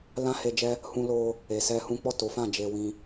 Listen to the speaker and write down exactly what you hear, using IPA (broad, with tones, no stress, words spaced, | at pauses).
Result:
lã˦he˧d͡ʒɛ˦ | hũ˧lo˧ | e˨sɛ˧hũ˦ k͡pɔ˦˨to˨˦fã˦˨ d͡ʒe˧wĩ˧